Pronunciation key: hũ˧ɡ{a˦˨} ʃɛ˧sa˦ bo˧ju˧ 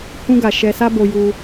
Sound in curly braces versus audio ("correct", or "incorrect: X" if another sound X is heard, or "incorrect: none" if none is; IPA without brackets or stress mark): incorrect: a˨